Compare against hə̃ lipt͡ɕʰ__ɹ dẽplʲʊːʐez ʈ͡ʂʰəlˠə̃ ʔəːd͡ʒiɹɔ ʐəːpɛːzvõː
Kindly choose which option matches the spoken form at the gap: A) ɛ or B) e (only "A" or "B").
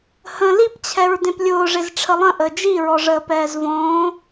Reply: A